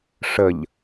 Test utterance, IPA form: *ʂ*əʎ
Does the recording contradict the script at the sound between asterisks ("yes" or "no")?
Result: no